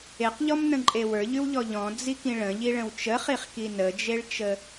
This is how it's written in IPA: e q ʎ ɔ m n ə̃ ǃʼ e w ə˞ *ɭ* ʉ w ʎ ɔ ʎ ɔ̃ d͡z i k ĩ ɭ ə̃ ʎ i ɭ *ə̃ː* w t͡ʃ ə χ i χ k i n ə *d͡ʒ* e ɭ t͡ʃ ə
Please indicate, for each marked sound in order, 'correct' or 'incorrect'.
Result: incorrect: ʎ, incorrect: ə̃, correct

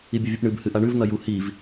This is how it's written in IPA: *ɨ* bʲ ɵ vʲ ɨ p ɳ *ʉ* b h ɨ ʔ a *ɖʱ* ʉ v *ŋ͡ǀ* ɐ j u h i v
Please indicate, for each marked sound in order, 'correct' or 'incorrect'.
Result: incorrect: i, incorrect: ɨ, incorrect: ɳ, incorrect: n̪

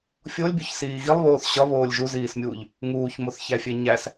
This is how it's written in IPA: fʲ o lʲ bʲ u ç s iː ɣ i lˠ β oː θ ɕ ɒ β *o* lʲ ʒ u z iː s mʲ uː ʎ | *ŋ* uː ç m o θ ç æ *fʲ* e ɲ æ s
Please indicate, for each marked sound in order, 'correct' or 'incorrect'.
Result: incorrect: oː, correct, correct

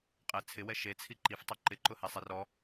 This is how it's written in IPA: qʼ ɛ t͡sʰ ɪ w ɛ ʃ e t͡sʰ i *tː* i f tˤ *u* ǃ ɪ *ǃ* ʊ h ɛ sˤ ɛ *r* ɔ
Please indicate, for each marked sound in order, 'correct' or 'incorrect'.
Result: incorrect: ǃ, correct, correct, correct

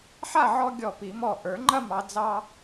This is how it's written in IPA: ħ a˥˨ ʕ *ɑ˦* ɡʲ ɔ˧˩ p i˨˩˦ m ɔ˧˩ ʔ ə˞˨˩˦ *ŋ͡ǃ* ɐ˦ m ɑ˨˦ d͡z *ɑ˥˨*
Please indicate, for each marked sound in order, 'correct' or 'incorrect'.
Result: incorrect: ɔ˦, correct, incorrect: ɑ˦

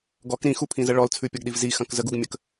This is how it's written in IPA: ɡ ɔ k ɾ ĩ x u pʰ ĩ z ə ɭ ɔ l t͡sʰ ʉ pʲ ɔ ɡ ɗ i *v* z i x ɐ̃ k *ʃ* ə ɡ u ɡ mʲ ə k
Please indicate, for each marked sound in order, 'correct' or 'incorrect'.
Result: correct, incorrect: z

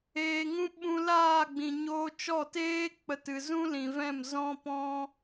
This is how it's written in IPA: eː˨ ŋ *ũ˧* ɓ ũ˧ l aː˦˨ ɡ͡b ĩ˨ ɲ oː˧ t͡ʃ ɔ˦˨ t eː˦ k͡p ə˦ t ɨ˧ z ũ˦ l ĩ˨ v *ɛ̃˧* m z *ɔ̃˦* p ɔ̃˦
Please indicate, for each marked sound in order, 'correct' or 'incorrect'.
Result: correct, incorrect: ɛ̃˦˨, correct

